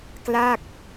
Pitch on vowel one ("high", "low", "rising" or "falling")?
falling